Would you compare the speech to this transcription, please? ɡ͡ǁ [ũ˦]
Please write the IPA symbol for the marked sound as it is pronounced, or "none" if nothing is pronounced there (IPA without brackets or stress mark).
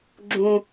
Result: ũ˦